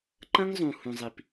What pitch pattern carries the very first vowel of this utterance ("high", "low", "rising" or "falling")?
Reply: high